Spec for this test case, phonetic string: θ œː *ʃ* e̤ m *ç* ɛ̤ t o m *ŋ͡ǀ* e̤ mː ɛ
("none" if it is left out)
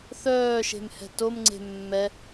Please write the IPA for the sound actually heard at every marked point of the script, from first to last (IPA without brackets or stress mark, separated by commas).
ʃ, h, ŋ͡ǀ